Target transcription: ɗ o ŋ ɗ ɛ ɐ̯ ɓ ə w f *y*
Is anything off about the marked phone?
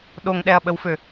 yes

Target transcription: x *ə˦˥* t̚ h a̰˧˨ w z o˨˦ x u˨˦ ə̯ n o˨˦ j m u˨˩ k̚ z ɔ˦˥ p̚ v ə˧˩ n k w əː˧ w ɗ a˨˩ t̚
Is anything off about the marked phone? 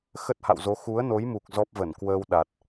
no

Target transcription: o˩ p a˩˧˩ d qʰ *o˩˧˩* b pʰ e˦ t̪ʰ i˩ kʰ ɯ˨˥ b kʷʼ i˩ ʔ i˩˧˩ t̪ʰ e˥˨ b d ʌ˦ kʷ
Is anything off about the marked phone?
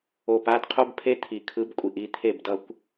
yes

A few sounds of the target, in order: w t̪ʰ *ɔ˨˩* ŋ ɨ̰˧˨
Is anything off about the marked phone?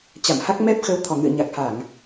no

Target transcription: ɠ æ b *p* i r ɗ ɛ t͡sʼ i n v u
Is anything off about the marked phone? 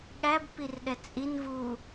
no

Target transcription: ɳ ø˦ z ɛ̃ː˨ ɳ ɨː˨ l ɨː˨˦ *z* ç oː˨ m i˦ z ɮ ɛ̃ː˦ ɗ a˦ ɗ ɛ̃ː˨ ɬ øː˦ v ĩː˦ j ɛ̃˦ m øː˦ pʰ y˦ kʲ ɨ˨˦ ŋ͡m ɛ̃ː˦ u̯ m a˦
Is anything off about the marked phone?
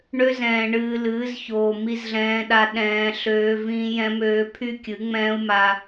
no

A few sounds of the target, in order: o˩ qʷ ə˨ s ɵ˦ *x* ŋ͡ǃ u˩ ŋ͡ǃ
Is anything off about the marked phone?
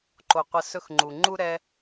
no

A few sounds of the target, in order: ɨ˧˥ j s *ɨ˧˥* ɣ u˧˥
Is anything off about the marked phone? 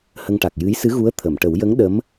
no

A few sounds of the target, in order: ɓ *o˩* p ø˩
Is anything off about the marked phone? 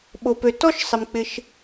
no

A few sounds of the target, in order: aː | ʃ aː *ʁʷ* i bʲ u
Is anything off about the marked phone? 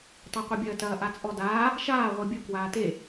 no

